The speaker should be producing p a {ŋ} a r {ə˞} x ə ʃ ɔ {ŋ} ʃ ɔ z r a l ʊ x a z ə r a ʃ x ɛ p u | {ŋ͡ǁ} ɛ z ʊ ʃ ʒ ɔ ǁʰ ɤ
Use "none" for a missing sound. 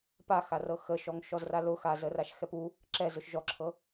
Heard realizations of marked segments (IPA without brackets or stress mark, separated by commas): x, ɤ, ŋ, ǁ